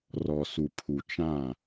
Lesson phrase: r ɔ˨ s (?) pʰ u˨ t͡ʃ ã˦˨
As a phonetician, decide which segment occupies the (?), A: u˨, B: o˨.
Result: A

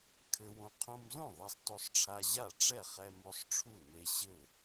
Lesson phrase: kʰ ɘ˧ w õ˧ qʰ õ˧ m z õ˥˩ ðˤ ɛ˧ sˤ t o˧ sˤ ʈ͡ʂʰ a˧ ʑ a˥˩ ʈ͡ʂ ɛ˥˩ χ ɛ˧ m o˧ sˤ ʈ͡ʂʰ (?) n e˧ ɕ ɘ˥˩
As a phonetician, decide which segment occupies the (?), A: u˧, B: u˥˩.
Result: B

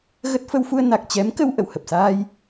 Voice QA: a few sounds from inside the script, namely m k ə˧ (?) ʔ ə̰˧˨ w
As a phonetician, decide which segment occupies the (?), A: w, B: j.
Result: A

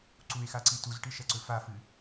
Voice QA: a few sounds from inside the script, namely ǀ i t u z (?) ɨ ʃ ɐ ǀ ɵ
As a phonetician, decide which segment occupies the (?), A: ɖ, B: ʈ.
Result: B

